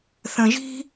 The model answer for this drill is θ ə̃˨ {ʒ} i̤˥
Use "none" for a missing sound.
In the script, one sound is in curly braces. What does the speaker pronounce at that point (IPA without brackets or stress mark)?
ʒ